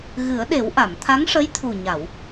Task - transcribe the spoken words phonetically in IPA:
ɣ ɨ˨˩˦ ə̯ ɗ e˨˩˦ w ʔ a˨˩˨ m t̪ʰ a˧˥ ŋ ʂ ə˧˥ j t̪ʰ u˨˩ ɲ a˨˩˨ w

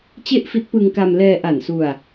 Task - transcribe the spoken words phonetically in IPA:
t͡ɕ e˥˩ ʔ f i˦˥ t̚ p ɯ˧ ŋ k a˧ m l ɛː˧ ʔ a˨˩ n s u˧ a̯

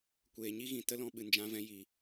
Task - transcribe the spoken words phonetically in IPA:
kʷ eː˨ ɲ i˦ ɣ ĩ˨ t ə˦ l ɔ̃˧ ɓ ɨ˨ n d͡ʒ ã˧ v ɛ̃˧ j i˨

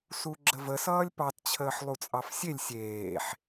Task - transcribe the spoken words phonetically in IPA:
s u ɡ͡ǁ ə v ə s ʌː lʲ p ɑ t t͡ɕʰ əː ħ lˠ u t͡sʼ ɑ f sʲ e lʲ sʲ eː ħ

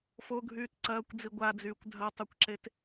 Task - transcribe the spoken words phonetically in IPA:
f o ɡʱ yː t ǀ ɐː kʷ d͡z i ɡʷ a d͡z yː kʷ dʱ ɐ tˤ ø kʷ ǁ e t

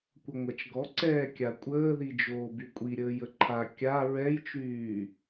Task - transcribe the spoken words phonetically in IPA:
kʷ ɐ ŋʷ a t͡ʃ ɡ ɔ ǀ ɛː kʲ a kʷʼ əː ð i d͡ʒ oː b y kʷʼ i ɾʲ əː j ə ǃʰ a kʲ a ɹ ɛ j t͡ʃ yː

